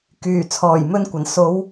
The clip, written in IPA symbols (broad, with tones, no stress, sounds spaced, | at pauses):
k yː˨˩ t͡sʰ ɔː˨˩ j m ɵ˧ n kʷ ɐ˨˩ n s o˨˧ w